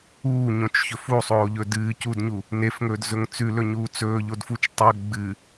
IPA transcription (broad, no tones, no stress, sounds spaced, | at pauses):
uː ɲ õ t͡ʃ ç ɵ f u sˤ oː ʎ ɵ d ɨː c u d ɲ u | n e f ŋ ɵː d z ɵ ŋ t͡s ʉ l ɵ ɲ uː t͡s ɵː ʎ o d f u t͡ʃ tˤ ɵ ɡ͡b ɨ